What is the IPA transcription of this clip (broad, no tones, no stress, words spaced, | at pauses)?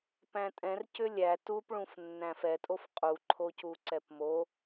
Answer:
pæ̃tʼɛ̃r cʏlʲæ tupɭũf nːæ̃fɛtʼof qʼuǃʰocu ǀɛpmo